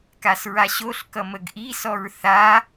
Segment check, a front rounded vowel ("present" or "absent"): absent